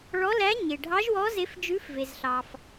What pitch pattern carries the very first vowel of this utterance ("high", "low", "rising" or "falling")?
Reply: rising